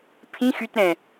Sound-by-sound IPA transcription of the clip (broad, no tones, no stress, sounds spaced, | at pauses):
pʰ ĩ x y t ɾ ɛ̃